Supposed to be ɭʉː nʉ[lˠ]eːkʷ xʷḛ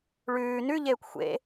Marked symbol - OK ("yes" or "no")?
no